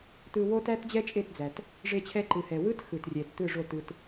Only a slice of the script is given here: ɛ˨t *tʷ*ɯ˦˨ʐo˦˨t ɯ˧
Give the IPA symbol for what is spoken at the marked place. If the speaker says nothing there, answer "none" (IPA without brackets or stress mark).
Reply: t̪